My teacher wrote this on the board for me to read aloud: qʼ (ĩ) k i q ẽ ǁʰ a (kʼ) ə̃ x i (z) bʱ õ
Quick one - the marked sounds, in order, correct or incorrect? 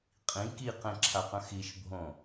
correct, incorrect: q, incorrect: ʃ

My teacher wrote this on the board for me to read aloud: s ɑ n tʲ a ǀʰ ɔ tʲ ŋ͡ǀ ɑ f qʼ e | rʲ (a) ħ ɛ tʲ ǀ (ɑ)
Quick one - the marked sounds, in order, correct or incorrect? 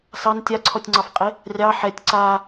incorrect: ɑ, incorrect: a

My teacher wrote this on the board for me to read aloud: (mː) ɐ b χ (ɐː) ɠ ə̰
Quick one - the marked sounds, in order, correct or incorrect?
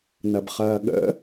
incorrect: n, correct

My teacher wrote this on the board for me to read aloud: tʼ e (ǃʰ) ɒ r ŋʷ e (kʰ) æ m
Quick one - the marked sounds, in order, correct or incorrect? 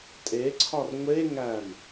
incorrect: ǀʰ, incorrect: ŋ

